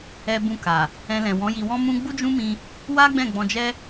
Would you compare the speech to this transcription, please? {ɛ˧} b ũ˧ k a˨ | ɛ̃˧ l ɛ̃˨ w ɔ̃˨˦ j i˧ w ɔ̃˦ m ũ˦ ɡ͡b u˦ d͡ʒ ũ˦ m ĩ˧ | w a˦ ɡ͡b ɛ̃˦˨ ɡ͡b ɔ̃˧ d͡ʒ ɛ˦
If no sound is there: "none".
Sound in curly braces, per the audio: ɛ˧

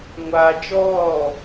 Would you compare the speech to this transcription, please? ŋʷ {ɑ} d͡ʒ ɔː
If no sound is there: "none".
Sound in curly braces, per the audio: a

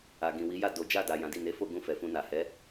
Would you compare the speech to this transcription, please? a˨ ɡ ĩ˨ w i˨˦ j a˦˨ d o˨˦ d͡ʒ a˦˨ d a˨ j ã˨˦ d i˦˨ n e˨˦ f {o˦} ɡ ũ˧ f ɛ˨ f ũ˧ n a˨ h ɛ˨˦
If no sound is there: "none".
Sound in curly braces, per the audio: o˦˨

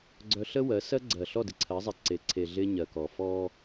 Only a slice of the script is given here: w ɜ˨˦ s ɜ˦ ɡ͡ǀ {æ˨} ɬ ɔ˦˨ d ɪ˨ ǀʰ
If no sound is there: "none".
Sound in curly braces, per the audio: ɜ˨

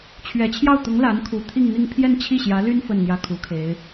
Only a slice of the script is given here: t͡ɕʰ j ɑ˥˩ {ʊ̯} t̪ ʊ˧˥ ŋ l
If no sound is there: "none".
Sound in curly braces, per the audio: ʊ̯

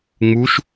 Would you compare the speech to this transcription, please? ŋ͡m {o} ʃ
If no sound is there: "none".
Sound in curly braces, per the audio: u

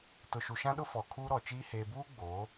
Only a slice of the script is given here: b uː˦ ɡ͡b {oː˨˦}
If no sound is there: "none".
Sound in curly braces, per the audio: oː˨˦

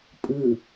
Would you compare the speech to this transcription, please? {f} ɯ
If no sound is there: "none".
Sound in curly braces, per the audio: pʼ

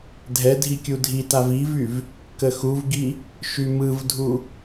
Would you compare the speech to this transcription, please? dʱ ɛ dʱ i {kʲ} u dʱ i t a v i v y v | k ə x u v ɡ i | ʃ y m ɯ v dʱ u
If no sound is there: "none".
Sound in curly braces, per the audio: kʲ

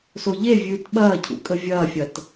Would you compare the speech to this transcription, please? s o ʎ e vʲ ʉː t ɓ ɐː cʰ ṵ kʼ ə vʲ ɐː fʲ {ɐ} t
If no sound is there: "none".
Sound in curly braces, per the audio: ɐ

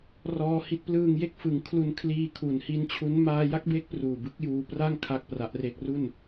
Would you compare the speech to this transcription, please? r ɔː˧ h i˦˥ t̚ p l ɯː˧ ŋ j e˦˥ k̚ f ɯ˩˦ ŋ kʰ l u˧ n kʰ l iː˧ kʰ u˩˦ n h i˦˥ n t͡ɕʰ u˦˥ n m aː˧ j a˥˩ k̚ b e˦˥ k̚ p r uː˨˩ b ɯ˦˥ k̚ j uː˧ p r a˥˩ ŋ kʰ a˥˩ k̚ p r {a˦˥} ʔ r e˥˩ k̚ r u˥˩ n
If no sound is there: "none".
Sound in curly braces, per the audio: a˦˥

